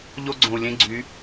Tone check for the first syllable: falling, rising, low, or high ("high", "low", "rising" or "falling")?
high